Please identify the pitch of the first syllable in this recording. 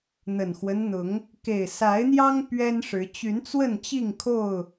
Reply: low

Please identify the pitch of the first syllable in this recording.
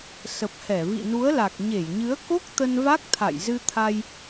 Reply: low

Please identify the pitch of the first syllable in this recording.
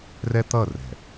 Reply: high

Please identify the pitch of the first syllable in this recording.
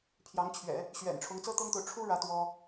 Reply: rising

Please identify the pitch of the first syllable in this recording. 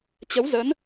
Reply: rising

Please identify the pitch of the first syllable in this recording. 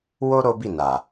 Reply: high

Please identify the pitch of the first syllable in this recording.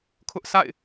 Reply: high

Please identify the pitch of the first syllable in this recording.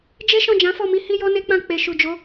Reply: high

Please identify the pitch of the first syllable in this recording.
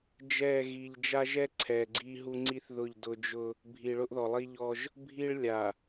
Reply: falling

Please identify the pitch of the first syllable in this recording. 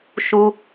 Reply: low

